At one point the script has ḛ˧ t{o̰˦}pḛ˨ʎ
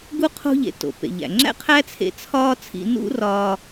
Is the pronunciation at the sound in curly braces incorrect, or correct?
incorrect